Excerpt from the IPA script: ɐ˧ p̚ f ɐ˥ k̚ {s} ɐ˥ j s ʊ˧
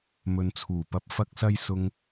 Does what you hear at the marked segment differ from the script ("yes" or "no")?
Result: no